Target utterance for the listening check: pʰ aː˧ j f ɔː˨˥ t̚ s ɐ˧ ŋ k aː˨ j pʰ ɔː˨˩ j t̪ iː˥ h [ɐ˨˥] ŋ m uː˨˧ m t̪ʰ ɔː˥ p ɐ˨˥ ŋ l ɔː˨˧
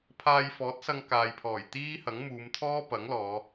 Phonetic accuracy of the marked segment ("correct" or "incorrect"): correct